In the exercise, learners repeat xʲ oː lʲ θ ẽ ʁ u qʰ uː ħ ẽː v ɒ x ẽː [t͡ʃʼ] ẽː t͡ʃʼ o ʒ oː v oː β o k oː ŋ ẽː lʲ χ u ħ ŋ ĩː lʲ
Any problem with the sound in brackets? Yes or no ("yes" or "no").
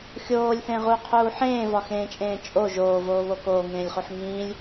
no